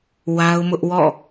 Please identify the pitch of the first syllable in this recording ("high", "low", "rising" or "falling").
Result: high